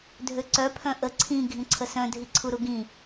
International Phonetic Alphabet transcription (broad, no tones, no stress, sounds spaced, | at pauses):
dʱ ø ǀ œ pʰ œ̃ ʔ ə ǀʰ ĩ ɡʱ ĩ ǀʰ ə s œ̃ dʱ i ǀʰ u ɾ u ɡ ĩ